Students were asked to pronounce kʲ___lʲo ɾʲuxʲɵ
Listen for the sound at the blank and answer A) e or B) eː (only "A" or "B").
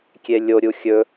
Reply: A